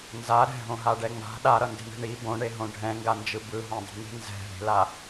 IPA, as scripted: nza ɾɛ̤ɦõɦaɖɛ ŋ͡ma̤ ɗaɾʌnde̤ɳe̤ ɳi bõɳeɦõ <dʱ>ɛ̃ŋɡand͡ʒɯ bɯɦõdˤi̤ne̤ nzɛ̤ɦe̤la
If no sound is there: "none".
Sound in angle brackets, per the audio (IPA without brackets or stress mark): ɖʱ